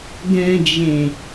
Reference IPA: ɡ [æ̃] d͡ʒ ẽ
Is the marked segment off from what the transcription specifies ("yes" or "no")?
yes